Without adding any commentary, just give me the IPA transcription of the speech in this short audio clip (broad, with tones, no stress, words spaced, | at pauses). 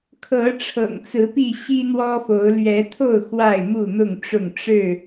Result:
kʰɤ˨˦ ʈ͡ʂʰɤ̰˨˩ŋt͡sɹ̩˨˦pi˥˨ ɕi˦n̪wɔ˦fo˨˦ʊ̯ lɥɛ˨˦t̪ʰo˥˨ʊ̯ xwa˥˨ɪ̯mu˥˨n̪ʊ˥˨ŋʈ͡ʂʊ˥˨ŋ ʈ͡ʂɻ̩˥˨